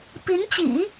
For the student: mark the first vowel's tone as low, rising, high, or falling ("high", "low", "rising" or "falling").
rising